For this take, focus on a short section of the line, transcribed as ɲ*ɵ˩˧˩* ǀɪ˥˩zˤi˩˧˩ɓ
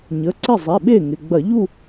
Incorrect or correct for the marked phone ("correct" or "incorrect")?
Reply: incorrect